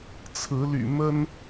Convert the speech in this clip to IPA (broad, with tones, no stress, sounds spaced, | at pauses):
t͡sʰ ɹ̩˨˦ l y̰˨˩ m ə˦ n